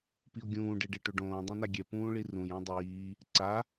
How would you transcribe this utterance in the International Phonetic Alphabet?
p i o̯ ɡʲ ũː ɖ e ɖ e ʈ o ɖ õː dˤ ĩ n a ɡʲ ɛ p ũː ɭ i r ũ j ɛ̃ dˤ iː | ǀ a

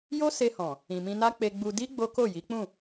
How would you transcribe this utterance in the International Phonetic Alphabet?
j o˦ s e˧ h ɔ̃˨ | ĩ˨ m ĩ˧ n a˦ k͡p e˧ ɡ͡b u˧ d i˦ ɡ͡b o˦ k o˦˨ j i˨˦ k͡p ũ˦˨

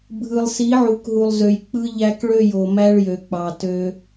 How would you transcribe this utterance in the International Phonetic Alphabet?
bʱ ɯ˨ lˠ s i˨˦ ʕ u˨ k ɦ u˨ lˠ z ø˨ j k͡p ɯ˦ ʎ æ˦ k ɭ ø˦˨ j o˨ m æ˦ ɭ j ø˨ k͡p ɑ˨ t ø˦

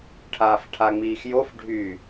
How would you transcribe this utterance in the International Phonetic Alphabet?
ʈʰ aː f ʈʰ a ŋ͡m iː x j o f ɖʱ y

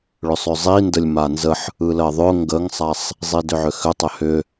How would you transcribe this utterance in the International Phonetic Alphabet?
ɭ ʏ sˤ ʏ zˤ i n d ə lʲ m a n z ə ħ | ɯ l ɜ ðˤ ʊ ŋ ɡ ə ŋ sˤ a sˤ | zˤ i d ʏ ʕ ʏ x ʏ tˤ ʏ h ʏ

